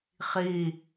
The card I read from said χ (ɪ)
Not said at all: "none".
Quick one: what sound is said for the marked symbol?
i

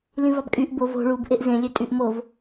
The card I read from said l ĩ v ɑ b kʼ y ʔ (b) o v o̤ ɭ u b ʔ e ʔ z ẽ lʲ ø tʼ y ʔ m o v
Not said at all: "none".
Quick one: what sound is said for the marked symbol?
b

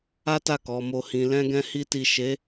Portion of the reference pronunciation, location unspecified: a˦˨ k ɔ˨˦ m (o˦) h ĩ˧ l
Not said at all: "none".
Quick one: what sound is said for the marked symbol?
o˦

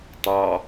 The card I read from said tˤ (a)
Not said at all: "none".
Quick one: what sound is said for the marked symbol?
ɑ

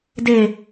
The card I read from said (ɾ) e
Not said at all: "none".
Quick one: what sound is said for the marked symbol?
d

